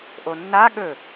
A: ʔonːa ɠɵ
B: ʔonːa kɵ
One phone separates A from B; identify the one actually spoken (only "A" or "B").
A